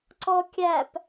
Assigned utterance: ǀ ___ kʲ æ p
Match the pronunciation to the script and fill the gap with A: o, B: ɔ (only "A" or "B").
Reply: B